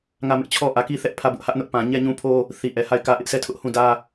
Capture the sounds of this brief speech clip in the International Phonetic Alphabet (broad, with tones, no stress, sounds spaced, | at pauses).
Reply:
ŋ ä˦˨ m ɪ˦ ʔ t͡ɕʰ ɔ˦ ʔ ä˨ k i˦ θ ɛ˦ ʔ pʰ ä˦˨ b ʊ˦ ʔ h ä˦ ʔ n ʊ˦ ʔ p ã˨ ɲ ɛ˦˨ ɲ ũ˦ pʰ o˦ | θ i˨ ʔ ɛ˨ h a˦˨ ɪ̯ k ä˦ ʔ ɪ˦ ʔ sʰ ɛ˦˨ tʰ ʊ˦ ʔ h ũ˦˨ d ä˦